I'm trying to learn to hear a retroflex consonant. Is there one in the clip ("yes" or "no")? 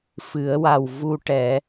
yes